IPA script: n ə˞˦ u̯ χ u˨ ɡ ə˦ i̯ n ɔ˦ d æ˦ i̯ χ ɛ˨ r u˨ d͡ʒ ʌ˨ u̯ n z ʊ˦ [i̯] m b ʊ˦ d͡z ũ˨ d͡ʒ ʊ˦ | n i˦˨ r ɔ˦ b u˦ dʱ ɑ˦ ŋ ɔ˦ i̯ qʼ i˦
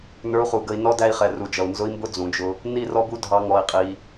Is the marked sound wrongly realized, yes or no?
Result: no